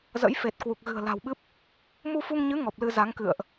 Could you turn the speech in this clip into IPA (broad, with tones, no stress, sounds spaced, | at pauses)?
z ə̰˧˥ j f e˨˩ t̚ k w u˨˩ k̚ ɣ ɨ̤˨˩ ə̯ l a̤˨˩ w ɓ ɨ˦˥ p̚ | m u˧ f u˧ ŋ ɲ ɨ˨˦ ŋ ɔ˨˩ p̚ l ɨ˧ z a˨˦ ŋ k ɨ̰˧˨ ə̯ ʔ